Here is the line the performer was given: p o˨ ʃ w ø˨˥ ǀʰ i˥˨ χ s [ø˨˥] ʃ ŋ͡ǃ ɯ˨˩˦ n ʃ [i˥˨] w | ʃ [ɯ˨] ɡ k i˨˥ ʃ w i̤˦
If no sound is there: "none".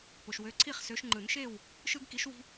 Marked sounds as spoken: ø˨˥, e˥˨, ɯ˦

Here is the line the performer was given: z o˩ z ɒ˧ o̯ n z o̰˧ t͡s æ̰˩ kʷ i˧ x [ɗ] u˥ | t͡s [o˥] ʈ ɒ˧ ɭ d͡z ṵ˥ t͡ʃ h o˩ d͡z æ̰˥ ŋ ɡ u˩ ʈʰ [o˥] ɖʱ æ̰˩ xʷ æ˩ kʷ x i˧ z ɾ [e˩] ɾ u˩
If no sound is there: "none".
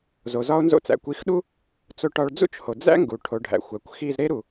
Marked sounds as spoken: ɗ, o˧, o˩, e˥

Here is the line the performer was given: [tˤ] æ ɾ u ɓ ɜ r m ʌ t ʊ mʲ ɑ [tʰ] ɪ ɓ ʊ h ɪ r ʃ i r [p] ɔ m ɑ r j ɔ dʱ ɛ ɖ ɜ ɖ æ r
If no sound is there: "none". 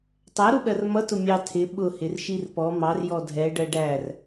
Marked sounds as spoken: tˤ, tʰ, p

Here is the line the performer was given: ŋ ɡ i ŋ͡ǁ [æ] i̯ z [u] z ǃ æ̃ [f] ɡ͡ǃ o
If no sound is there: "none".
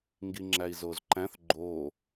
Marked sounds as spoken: æ, o, θ

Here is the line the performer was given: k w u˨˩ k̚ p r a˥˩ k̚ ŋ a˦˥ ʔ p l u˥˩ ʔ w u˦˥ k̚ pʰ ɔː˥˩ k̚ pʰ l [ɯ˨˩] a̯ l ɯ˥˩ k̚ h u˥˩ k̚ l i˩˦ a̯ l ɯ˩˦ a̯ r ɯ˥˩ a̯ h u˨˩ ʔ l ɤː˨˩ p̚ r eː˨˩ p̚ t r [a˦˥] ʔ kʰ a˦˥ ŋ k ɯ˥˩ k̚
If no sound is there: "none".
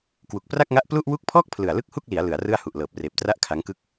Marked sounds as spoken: ɯ˨˩, a˦˥

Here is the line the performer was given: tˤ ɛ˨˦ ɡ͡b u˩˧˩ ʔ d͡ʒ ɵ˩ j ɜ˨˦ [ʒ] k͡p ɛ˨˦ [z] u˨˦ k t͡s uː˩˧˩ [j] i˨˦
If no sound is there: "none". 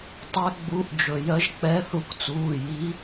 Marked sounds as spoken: ʒ, θ, j

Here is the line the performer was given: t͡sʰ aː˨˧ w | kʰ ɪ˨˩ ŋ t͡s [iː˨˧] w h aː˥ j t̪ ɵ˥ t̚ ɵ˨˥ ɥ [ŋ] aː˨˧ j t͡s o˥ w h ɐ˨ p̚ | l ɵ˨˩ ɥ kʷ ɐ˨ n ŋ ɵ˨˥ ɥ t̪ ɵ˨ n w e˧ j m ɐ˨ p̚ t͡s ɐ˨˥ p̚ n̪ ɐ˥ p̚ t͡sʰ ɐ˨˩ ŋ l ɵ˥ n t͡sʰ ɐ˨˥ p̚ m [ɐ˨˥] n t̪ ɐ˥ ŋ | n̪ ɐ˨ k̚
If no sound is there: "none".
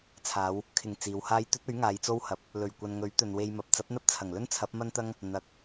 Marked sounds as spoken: iː˨˧, ŋ, ɐ˥

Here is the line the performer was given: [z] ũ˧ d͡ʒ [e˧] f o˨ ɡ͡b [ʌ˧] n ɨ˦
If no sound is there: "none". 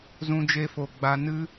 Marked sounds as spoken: z, e˧, a˧

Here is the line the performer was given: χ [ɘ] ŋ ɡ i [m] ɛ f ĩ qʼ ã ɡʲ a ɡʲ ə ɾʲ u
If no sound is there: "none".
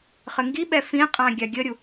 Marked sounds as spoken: ɘ, ɓ

